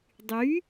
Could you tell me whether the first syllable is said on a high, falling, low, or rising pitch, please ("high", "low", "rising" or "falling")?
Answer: rising